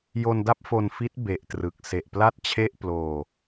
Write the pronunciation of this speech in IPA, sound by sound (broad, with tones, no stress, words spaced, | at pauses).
jo˧nda˥˩p̚fo˧n fi˦˥t̚ be˨˩ʔtrɯ˨˩k̚ se˨˩ʔpla˥˩t̚ t͡ɕʰe˥˩ʔ ploː˧